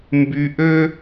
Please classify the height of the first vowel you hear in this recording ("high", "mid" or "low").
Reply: high